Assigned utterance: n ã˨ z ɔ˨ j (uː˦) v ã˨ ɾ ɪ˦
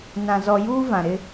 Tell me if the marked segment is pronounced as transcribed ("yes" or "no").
yes